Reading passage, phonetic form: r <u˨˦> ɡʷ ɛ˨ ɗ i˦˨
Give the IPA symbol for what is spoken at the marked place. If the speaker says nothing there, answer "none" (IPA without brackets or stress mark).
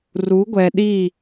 u˨˦